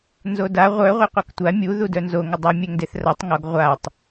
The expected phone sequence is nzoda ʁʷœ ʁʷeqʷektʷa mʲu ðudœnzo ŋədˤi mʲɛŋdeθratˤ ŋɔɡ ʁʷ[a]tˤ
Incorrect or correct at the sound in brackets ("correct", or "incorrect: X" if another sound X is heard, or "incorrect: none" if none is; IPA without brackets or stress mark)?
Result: correct